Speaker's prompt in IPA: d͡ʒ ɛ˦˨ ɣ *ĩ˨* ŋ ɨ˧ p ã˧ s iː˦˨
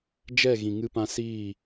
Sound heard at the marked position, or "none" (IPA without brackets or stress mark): ĩ˨